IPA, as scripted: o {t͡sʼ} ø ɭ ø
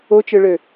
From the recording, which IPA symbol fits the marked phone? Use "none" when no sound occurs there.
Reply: t͡ʃ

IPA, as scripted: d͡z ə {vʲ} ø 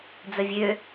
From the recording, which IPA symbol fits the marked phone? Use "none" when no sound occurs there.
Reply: vʲ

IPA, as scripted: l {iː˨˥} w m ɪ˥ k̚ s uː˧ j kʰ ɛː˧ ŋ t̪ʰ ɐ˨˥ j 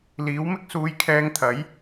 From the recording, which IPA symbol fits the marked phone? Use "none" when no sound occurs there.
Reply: iː˨˥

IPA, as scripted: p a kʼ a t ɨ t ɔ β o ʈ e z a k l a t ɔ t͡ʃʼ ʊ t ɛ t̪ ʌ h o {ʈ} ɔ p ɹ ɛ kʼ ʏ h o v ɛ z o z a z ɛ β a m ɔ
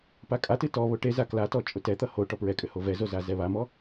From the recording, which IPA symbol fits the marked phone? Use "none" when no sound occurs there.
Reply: ʈ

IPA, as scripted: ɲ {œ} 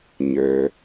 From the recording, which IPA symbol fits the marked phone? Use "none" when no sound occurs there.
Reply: œ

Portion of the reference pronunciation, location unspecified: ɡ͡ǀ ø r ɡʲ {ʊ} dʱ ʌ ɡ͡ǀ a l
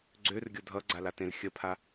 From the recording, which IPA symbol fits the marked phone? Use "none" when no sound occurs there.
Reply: ʊ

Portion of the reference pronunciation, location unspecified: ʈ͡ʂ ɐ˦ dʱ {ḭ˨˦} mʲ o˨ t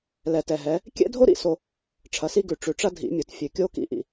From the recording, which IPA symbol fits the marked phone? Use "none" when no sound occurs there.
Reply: ḭ˨˦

